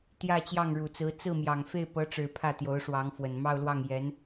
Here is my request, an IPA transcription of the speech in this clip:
t̪jä˥˧t͡ɕjɑ˥˩ŋɻu˨˩t͡sɹ̩˧˥ t͡sɹ̩˥˩mjɑ˨˩ŋ fe˥˩ɪ̯pɤ˧˥ʈ͡ʂɻ̩˨˩ pʰä˥˩t̪jo˧˥ʊ̯ʂwɑ˧˥ŋfwə˨˩n mɑ˥˧ʊ̯lwɑ˥˩ŋ jɛ˧˥n

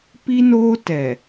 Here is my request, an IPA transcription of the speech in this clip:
pi˦noː˦ tɛ˨

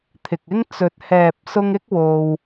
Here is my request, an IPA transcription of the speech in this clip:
t̪ʰɪ˨k̚ɪ˥ŋ t͡sɵ˨˥t̚hɛː˨p̚sʊ˧ŋ ɪ˥k̚wo˧w

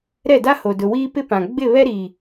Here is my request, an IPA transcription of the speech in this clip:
ɾɛ˦˨da˦ho˨ dʊ˨wiː˦ pɪ˦ pã˨ ɡ͡bɪ˦˨βɛ˦ɾi˨

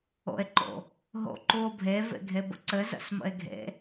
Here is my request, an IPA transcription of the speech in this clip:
o̰e̯ǃo̰ | ɦo̰ǃuo̯bʱe vḛɡʱebə̰ǀɘ zə̰smə̰e̯ɡʱḛ

